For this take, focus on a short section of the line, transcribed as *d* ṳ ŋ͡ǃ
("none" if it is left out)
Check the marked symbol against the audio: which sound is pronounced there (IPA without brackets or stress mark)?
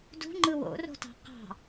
d